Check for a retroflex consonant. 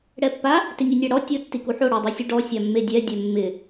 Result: present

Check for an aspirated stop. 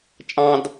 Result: absent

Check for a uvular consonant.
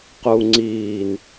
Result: present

